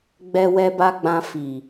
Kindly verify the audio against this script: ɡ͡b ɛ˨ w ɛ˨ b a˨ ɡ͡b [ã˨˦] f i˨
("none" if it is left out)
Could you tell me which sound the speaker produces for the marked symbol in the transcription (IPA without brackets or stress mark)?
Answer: ã˨